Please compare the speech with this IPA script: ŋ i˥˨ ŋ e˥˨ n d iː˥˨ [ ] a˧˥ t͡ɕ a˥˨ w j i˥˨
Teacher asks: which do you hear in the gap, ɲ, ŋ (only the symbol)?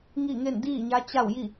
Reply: ɲ